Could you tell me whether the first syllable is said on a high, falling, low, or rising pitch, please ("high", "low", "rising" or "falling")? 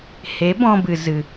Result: rising